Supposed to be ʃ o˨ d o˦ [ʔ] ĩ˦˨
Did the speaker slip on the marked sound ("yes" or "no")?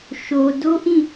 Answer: no